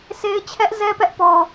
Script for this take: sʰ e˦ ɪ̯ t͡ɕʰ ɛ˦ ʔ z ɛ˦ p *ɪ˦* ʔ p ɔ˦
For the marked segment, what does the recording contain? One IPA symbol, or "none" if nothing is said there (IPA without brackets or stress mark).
ɛ˦